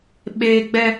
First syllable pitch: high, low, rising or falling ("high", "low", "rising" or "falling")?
high